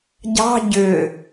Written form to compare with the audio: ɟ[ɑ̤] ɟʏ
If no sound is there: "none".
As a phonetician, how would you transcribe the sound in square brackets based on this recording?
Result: ɑ̤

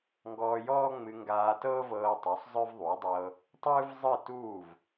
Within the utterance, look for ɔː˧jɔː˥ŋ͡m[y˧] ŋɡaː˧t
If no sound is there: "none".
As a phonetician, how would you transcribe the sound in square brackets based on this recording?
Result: ɨ˧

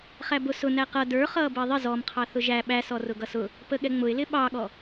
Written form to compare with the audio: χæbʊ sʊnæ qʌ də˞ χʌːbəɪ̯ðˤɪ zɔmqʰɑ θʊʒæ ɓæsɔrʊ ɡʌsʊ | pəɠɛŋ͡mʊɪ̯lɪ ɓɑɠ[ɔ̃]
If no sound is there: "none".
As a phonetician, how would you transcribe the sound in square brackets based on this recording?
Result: ɔ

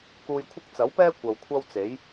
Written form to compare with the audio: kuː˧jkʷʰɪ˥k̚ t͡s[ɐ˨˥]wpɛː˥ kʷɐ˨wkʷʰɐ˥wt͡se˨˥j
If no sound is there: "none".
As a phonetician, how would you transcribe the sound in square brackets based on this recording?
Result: ɐ˨˥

